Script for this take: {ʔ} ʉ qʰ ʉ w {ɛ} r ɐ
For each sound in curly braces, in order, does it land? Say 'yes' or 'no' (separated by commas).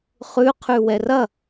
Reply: no, yes